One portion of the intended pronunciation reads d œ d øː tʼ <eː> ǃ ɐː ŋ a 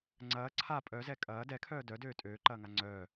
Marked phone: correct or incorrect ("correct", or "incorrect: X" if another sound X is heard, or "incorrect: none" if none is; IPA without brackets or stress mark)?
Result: incorrect: øː